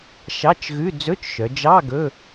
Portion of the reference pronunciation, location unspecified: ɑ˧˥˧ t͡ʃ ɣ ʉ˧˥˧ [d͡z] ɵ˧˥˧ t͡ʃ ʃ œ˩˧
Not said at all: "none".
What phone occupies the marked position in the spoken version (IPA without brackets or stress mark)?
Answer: d͡z